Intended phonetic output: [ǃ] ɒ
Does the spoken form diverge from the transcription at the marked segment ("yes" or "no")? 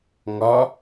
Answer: yes